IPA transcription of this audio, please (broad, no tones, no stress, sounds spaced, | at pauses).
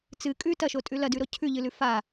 t͡s ɨ kʼ ʉ t ɐ ʃ o tʼ ʉ l ɐ d ʉ ɾ o cʰ ʉ ʎ ɨ l ʉ f a